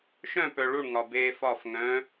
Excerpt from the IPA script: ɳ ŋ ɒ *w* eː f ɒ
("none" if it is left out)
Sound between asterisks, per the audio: b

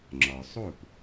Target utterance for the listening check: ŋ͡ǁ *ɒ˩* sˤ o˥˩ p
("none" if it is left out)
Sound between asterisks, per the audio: ɒ˩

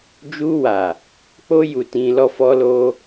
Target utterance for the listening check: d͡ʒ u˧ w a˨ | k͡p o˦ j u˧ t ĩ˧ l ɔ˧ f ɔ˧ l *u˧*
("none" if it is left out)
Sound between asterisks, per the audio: o˧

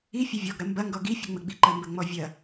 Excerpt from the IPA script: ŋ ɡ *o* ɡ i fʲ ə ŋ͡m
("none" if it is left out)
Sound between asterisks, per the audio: ɔ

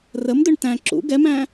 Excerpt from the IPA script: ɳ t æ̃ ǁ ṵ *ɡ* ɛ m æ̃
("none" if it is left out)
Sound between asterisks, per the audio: ɡ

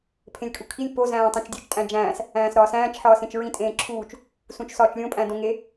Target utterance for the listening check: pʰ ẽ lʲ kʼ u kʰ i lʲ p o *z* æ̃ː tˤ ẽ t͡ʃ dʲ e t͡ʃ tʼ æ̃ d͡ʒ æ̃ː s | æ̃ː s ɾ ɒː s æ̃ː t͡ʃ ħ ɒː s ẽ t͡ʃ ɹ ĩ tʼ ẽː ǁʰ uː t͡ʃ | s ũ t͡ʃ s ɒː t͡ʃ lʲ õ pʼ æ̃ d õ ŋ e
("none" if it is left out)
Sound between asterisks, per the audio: z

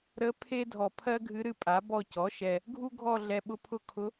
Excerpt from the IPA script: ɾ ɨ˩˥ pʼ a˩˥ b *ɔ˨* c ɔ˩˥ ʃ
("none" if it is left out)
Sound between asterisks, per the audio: ɔ˦˨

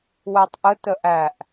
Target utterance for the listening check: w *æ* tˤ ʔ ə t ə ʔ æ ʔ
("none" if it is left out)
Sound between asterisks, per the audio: æ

